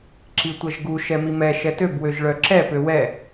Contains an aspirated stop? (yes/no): no